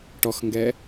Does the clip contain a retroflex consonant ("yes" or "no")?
yes